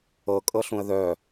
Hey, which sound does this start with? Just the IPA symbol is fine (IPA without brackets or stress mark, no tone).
ɤ